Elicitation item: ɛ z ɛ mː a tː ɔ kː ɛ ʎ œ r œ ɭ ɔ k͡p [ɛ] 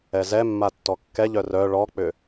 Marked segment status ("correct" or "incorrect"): incorrect